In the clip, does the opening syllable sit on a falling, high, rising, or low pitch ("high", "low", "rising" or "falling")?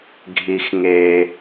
high